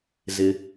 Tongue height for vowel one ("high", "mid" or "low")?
high